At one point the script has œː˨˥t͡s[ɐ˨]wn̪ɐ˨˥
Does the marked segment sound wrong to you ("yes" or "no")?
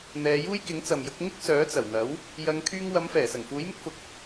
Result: yes